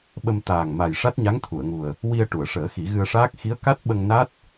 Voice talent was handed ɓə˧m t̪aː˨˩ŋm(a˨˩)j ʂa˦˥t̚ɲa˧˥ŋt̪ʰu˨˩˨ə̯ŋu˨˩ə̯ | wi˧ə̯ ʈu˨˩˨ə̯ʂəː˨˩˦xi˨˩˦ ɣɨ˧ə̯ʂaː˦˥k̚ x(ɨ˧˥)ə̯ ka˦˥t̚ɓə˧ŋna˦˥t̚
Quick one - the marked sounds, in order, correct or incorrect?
correct, incorrect

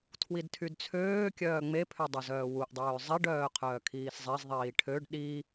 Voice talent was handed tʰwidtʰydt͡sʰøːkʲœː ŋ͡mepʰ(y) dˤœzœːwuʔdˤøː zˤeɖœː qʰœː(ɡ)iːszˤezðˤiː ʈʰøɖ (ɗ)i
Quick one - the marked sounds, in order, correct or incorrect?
incorrect, incorrect, correct

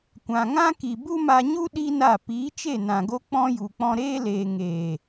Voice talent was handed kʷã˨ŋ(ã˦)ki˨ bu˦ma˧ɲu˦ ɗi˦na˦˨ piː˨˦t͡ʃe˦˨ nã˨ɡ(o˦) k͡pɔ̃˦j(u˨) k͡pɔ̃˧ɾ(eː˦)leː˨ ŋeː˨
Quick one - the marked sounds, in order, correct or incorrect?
correct, correct, correct, correct

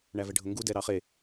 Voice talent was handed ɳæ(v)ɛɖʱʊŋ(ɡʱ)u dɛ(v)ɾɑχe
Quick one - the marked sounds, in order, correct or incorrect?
correct, incorrect, incorrect

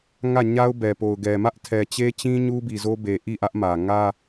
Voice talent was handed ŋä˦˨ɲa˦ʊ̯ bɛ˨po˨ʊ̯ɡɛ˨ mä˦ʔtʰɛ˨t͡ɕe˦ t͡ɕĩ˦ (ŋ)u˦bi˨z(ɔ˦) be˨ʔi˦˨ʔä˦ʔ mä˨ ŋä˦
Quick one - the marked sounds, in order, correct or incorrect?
incorrect, incorrect

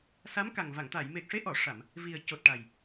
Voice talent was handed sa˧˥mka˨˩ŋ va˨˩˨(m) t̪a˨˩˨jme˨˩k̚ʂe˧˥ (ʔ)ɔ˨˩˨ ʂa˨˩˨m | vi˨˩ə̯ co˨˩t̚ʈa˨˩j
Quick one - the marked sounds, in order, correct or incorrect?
incorrect, correct

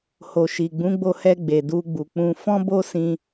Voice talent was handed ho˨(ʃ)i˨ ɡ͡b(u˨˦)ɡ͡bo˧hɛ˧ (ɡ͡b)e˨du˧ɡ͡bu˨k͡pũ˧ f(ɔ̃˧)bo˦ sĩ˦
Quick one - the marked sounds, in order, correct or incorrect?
correct, incorrect, correct, incorrect

